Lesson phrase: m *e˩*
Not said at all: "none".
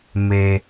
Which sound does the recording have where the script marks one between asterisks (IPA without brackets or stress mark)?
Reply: e˩